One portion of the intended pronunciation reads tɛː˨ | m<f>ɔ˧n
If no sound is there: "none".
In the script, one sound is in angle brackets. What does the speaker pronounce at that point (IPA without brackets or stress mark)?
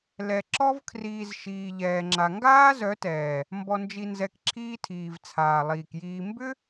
b